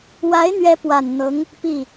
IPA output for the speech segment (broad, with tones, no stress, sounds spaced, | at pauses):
w a˧˥ ɪ̯ n̪ ɥ ɛ˧˥ p w a˨˩ n n̪ ɤ˧˥ ŋ | p i˥˩